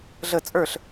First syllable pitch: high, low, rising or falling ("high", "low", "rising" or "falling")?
falling